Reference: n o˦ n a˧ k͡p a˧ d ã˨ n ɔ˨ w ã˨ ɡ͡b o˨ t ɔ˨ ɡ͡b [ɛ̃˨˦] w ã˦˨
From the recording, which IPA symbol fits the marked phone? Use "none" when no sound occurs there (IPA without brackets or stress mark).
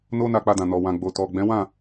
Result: ɛ̃˨˦